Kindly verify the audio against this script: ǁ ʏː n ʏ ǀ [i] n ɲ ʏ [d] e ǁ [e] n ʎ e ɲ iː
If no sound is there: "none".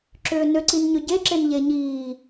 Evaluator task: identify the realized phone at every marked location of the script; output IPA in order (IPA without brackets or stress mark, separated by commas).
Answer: i, ɟ, e